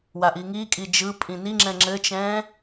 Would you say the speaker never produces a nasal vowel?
no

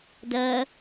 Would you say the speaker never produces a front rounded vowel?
yes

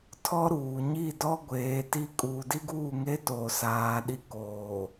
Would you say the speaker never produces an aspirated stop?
no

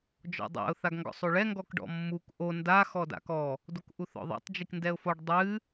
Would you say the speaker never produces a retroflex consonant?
no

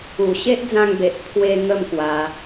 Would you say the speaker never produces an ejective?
yes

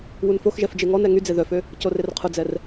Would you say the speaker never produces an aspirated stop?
no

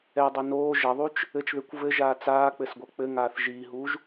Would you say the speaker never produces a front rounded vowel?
yes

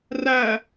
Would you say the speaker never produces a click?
yes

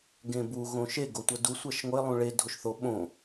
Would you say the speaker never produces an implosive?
no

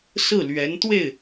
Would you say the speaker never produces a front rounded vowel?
yes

